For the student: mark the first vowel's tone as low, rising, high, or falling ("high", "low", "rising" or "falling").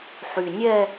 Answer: low